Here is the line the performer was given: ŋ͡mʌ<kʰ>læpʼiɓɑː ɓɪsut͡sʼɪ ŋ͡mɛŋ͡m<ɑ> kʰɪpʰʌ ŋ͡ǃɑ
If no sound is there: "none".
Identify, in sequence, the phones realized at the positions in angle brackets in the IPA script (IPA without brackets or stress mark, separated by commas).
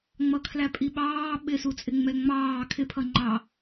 kʰ, ɑː